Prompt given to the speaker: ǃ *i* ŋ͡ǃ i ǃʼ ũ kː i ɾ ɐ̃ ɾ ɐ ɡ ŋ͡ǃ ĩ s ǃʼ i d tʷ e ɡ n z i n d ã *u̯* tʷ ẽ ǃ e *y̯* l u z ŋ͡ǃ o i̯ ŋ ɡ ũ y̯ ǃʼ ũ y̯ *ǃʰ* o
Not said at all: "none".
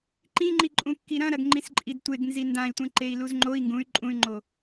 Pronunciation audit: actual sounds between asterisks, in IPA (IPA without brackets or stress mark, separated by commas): ĩ, i̯, i̯, ŋ͡ǃ